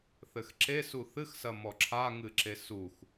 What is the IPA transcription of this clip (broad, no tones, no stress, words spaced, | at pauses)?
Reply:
θɘxǁe suθɨx sɐmɔǁʰa ŋɨǁesux